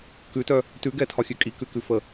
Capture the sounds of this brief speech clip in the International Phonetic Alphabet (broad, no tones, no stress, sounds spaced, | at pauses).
k ʉ t œ | t ʉ ɡ ɛ tʰ ɒ xʲ ʉ kʼ i k ʉ k ʉ f ə